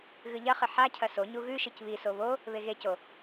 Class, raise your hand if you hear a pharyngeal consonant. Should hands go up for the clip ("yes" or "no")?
yes